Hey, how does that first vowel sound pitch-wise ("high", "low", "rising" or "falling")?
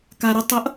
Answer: low